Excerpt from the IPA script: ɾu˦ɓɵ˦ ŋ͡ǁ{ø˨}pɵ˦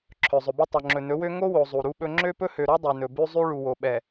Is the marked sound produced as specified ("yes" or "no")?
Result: no